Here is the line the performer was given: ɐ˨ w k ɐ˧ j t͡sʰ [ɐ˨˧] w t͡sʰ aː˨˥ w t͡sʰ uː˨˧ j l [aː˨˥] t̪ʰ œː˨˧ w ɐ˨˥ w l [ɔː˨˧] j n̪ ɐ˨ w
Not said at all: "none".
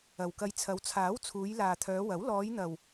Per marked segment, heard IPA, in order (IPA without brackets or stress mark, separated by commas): ɐ˨˧, aː˨, ɔː˨˧